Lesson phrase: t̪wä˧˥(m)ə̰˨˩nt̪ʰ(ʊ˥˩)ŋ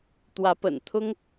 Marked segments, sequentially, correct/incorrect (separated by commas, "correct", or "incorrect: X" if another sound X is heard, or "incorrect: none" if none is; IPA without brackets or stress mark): incorrect: p, incorrect: ʊ˥